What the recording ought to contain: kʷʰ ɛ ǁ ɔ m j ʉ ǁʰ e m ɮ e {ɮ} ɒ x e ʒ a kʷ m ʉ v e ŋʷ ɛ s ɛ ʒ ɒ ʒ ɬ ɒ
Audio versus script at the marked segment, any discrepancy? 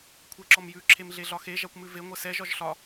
no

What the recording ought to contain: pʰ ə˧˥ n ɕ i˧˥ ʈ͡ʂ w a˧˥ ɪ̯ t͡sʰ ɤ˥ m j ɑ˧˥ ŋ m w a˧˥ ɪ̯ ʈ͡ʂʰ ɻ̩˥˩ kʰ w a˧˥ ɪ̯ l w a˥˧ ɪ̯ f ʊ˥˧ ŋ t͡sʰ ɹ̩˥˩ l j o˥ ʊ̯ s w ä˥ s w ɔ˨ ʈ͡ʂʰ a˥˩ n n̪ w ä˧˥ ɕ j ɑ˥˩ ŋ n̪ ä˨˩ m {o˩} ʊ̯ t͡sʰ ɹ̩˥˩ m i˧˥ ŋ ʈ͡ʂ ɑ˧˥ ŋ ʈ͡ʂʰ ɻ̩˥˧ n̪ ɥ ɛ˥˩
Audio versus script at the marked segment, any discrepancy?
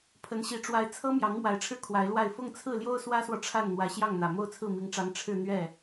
yes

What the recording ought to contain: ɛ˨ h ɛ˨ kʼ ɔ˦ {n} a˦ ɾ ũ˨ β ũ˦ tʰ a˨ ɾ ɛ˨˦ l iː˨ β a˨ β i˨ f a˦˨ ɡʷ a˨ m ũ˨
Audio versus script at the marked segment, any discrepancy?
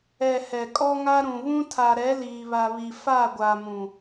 yes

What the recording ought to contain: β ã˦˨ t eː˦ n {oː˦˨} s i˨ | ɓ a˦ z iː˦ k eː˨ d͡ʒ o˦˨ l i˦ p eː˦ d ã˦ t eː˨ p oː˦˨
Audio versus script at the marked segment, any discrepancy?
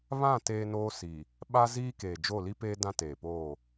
yes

